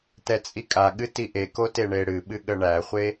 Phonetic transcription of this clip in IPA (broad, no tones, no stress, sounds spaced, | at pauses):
t ɛ t͡sʼ i kʼ a ɠ ɨ t i ʔ e k o t e ɳ e ɽ ɨ ɓ ɨ ɠ ə ɳ æ χʷ e